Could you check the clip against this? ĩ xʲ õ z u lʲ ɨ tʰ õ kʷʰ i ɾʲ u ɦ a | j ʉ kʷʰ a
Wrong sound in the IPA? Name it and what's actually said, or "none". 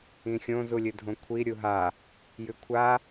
tʰ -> dʱ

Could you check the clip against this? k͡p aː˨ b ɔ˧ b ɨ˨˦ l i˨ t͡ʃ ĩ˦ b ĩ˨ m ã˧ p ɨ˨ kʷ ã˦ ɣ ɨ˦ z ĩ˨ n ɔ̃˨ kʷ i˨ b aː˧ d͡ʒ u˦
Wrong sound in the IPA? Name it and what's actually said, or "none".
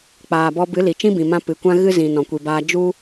none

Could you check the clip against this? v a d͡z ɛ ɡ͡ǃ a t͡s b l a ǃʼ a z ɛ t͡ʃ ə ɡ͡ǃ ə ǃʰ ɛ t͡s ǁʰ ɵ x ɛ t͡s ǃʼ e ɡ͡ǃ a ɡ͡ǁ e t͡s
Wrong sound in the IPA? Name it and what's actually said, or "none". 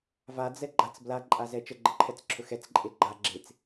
none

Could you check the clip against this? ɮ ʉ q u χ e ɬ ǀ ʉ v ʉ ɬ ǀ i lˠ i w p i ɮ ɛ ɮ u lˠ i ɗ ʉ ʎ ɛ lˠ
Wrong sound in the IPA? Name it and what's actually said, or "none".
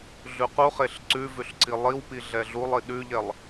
none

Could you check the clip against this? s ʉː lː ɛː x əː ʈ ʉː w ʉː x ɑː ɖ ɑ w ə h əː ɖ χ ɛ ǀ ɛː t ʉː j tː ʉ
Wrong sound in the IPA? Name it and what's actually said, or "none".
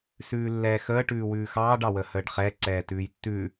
none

